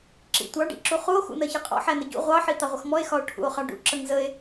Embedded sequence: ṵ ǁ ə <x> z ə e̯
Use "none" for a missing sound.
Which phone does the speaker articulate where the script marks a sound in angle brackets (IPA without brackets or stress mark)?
ŋ